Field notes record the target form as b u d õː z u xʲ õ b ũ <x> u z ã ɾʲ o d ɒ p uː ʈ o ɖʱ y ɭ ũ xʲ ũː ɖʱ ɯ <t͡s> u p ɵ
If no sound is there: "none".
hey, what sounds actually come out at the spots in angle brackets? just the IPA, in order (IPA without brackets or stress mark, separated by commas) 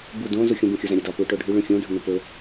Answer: xʲ, n